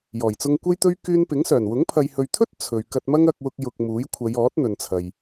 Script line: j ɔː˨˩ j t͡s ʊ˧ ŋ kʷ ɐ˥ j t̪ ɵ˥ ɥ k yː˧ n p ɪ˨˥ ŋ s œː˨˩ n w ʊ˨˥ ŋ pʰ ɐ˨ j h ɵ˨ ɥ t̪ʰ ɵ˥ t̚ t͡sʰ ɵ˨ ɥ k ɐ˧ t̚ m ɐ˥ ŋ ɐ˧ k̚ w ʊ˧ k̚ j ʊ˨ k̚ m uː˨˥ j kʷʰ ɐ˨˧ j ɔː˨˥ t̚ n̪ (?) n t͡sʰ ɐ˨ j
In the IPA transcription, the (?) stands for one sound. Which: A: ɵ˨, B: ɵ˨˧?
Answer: A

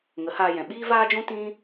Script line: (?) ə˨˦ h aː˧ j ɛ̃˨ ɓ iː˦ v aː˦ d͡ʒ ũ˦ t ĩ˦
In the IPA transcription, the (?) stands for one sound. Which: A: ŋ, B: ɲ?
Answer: A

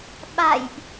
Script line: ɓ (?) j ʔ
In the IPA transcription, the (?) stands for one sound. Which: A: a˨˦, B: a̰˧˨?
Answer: B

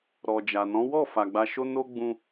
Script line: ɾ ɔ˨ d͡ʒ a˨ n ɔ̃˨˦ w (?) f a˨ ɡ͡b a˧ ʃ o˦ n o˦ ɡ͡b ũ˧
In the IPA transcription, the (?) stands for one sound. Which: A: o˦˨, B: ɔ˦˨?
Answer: B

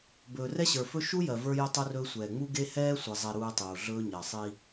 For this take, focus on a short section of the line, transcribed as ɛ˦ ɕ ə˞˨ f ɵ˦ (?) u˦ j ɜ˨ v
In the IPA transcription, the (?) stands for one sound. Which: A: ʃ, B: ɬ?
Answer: A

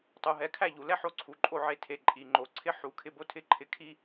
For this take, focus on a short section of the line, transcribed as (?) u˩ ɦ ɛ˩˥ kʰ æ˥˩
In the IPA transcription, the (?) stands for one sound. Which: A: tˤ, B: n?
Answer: A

